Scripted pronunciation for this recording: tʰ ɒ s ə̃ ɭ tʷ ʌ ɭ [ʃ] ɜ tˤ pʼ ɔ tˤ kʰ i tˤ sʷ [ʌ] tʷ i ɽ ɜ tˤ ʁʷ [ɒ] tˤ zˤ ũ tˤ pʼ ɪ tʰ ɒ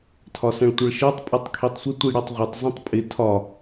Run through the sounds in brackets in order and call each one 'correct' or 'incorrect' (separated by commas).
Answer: correct, incorrect, incorrect